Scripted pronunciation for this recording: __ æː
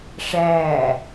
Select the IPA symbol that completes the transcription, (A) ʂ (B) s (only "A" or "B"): A